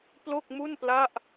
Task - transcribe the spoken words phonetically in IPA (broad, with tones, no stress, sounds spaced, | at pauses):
p l o˥˩ k̚ m u˥˩ n p l a˥˩ ʔ